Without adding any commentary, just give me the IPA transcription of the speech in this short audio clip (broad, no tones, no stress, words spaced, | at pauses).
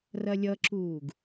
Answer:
rɐlʲʌǁuːɡ